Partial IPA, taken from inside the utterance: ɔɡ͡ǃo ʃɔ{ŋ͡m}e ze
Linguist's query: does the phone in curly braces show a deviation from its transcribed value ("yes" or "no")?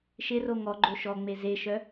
no